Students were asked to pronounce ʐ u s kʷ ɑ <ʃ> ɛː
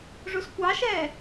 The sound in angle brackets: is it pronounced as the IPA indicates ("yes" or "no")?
yes